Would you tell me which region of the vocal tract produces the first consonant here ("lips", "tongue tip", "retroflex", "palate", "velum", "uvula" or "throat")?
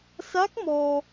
tongue tip